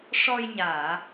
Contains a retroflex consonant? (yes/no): yes